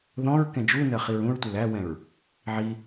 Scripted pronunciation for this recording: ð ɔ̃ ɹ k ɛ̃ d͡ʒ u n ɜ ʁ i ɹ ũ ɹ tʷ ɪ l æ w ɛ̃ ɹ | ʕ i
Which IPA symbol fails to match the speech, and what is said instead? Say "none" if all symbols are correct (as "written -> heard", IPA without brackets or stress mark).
ʁ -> χ